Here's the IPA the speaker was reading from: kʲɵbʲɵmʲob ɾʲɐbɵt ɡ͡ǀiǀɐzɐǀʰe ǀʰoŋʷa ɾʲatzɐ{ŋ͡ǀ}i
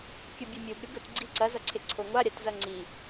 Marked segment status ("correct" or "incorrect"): correct